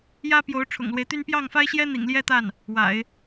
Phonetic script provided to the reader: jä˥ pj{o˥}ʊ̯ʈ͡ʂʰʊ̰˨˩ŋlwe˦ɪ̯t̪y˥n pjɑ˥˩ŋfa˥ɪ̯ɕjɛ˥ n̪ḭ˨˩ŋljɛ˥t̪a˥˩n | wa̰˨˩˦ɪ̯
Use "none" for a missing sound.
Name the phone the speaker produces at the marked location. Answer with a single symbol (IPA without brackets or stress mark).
o˧˥